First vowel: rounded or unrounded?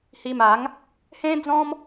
unrounded